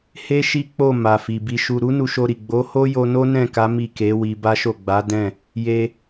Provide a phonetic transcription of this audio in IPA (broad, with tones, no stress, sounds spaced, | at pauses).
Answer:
h e˦ ʃ i˦ k͡p o˦˨ m a˨ f i˨ b i˧ ʃ u˧ ɾ u˦ n u˧ ʃ o˧ ɾ i˨ ɡ͡b o˨˦ h o˦ j o˧ n o˦ n ɛ̃˦˨ k a˨˦ m i˦˨ k e˨˦ w i˧ b a˦ ʃ o˦˨ ɡ͡b a˨˦ d ɛ̃˦˨ | j e˧